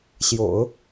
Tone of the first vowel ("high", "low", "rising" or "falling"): low